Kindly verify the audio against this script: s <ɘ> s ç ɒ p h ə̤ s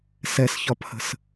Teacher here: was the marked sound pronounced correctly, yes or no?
no